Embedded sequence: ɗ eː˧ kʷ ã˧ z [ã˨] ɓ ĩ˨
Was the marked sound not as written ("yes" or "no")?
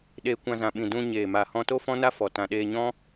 no